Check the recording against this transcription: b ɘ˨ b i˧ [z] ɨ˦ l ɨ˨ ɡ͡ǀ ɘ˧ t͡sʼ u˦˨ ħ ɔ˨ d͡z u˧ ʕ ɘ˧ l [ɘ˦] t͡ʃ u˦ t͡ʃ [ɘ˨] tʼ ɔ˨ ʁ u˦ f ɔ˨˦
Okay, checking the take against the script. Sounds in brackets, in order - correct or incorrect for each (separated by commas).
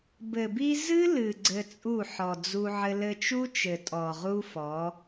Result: correct, incorrect, correct